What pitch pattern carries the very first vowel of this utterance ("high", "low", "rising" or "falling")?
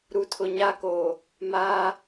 low